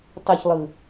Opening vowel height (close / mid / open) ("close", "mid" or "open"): mid